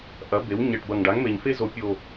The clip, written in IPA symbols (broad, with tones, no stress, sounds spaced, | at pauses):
ʔ ɐ˩˥ b e˩˥ w ɲ ɛ˨˩ ʈ b ɐ˨˩ ŋ ɖ a˩˥ ŋ m e˨˩ ɲ f e˥ z o˨˩˦ pʲ o˨˩